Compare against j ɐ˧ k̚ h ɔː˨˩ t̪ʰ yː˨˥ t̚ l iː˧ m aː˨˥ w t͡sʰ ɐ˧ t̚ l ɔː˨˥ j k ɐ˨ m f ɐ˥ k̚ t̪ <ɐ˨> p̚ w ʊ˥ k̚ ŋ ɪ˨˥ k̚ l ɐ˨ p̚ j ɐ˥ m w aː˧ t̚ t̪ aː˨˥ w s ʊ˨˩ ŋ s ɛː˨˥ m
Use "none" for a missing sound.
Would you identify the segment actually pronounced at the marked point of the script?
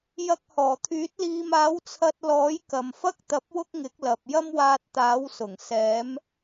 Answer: ɐ˧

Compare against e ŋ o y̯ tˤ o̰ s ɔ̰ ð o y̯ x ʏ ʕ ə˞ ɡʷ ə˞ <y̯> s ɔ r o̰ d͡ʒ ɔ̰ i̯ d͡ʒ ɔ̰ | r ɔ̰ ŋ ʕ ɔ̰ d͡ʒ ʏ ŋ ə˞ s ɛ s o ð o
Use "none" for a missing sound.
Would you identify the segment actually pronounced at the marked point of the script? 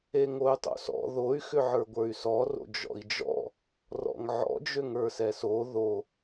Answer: y̯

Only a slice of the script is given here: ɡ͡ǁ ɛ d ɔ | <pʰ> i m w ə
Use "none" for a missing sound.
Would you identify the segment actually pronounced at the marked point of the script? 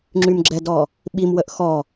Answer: ɓ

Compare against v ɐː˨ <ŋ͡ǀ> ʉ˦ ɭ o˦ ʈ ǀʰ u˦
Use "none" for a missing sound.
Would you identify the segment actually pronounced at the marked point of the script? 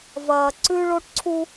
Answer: ǀ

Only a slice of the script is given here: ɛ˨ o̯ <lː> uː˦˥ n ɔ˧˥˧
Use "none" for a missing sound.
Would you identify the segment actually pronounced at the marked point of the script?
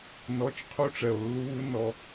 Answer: lː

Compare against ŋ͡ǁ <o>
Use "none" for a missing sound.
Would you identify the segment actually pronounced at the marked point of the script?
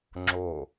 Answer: o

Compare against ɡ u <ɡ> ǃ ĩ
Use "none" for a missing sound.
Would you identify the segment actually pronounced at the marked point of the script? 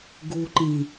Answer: none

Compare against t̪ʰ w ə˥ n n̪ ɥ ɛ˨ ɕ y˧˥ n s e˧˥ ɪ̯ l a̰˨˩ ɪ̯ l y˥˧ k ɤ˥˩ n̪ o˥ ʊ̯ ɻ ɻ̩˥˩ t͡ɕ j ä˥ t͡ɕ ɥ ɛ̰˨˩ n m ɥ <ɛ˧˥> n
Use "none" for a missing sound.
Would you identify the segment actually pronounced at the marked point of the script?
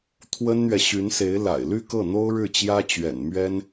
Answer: ɛ˥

